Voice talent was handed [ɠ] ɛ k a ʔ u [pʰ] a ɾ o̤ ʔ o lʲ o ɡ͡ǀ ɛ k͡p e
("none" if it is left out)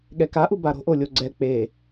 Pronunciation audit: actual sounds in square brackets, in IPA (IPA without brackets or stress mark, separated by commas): ɠ, b